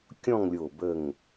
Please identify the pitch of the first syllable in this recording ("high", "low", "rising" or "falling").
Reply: falling